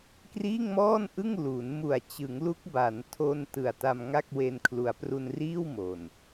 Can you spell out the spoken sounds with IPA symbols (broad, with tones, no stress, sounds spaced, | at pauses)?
k r iː˥˩ ŋ m ɔː˥˩ n ʔ ɯ˥˩ ŋ l u˩˦ n m u˨˩ a̯ t͡ɕ ɯ˩˦ ŋ l u˦˥ k̚ b a˩˦ n tʰ o˧ n t ɯ˨˩ a̯ t a˧ m ŋ a˥˩ k̚ w e˧ n kʰ l u˩˦ a̯ p r u˧ n r iː˥˩ w m o˨˩ n